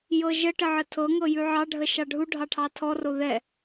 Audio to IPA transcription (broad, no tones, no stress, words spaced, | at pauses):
jɤʒəʈə ʕətʰɤŋɤ jʉʕɑɖʱə ʃɑɖʱuɖʱɑ ʈʰɑtʰɔro ðɛ